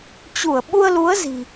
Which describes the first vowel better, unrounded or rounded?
rounded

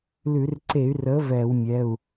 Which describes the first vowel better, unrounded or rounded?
rounded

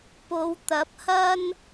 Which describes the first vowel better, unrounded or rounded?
rounded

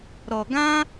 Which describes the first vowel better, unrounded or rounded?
rounded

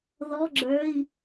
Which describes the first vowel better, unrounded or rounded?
rounded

